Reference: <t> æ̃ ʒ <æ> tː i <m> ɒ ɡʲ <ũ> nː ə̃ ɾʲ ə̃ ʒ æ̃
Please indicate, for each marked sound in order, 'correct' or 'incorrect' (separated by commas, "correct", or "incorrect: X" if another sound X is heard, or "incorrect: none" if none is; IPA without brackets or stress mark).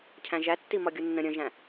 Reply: incorrect: cʰ, correct, correct, incorrect: u